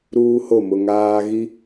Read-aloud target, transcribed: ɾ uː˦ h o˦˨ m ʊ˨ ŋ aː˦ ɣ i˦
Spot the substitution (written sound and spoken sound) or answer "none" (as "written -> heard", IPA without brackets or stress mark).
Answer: none